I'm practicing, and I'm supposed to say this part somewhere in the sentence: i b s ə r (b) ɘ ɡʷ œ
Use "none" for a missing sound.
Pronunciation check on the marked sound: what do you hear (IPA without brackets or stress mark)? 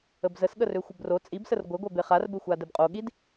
ɡʷ